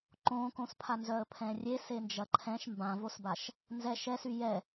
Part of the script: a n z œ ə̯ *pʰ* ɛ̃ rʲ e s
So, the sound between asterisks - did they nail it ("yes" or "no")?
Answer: yes